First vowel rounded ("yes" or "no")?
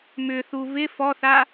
yes